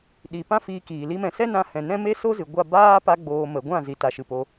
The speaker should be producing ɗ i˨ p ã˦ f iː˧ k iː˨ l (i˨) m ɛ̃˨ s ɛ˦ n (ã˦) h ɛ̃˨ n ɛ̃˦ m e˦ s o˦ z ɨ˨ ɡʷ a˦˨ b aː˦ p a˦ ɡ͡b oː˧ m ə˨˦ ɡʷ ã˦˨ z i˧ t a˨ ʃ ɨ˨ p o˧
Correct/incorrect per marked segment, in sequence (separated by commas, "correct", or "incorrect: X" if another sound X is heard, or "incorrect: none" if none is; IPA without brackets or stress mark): incorrect: i˧, incorrect: ã˧